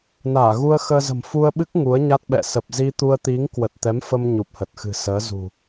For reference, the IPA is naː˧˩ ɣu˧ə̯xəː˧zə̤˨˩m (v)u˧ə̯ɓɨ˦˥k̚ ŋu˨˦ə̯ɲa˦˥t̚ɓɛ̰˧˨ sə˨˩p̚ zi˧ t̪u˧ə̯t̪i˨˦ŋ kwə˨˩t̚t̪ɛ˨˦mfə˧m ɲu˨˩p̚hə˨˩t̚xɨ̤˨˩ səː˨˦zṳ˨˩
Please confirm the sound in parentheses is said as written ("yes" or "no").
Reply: no